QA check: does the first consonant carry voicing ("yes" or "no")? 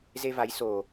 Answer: yes